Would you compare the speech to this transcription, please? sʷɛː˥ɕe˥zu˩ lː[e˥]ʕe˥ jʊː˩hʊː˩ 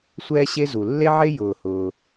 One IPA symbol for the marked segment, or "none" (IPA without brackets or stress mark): e˥